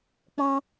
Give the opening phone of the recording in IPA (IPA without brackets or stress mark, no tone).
k͡p